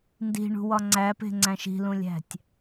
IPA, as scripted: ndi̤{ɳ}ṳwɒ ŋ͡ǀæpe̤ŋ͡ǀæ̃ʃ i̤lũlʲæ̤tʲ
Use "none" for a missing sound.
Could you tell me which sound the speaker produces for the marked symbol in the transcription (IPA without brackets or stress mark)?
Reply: ɳ